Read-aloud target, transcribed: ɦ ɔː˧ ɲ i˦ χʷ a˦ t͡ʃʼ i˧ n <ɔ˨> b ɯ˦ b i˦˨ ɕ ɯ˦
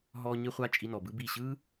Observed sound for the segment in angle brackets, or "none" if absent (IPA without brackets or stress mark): ɔ˨